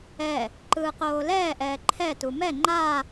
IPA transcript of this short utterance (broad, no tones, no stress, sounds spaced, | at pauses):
ɛ | ǃ ɯː q oː l ɛː ʔ ɛː ǃʰ ɛ t u m ɛ ŋ͡ǃ a